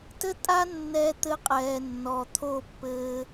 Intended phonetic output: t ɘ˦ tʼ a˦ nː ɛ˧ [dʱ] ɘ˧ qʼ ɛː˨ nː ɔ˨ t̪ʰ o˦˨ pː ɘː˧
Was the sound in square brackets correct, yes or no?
no